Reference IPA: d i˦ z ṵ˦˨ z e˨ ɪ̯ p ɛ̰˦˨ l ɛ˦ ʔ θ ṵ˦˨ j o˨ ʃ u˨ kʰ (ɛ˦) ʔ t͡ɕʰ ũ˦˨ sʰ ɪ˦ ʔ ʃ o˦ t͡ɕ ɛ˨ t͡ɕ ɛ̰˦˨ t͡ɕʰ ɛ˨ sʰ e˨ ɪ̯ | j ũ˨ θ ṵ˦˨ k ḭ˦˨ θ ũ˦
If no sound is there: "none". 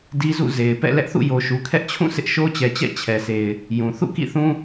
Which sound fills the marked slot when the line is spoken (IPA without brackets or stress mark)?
ɛ˦